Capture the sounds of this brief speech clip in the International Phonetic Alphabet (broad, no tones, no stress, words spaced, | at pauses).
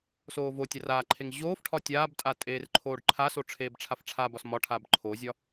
soːvotʲar aːǃʰeŋ ʑoːf ʈʰɒtʲaːbtʼa tʼeːrǃʰoːɖǃʰaso ʈ͡ʂʰeːbʈ͡ʂʰafʈ͡ʂʰabɒs mɒʈʰab ǃʰozʲɒ